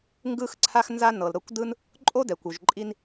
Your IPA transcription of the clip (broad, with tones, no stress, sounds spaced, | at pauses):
ŋ ɡ ɯ˦ x ǀʰ a˦ x n z a˦ n ɤ˨ l ɾ ɤ˧ kʷ d ɯ˦ n | ǃʼ o˦ d ɛ˨ kʷ u˨ ʒ ǃʼ i˦ n